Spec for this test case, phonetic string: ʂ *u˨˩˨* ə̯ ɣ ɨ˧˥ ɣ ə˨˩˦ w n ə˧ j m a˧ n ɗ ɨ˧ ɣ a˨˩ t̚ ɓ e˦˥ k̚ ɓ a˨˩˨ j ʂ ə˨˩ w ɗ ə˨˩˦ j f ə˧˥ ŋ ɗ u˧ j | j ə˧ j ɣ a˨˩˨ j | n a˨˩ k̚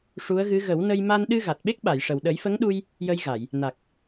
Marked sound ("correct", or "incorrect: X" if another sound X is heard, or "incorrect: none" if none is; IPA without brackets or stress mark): incorrect: u˧˥